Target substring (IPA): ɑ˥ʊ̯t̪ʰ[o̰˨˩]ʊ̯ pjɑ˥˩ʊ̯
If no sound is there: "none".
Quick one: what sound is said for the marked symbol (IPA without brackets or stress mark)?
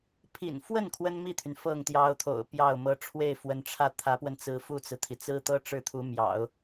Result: o̰˨˩